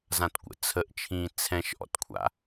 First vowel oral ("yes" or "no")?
no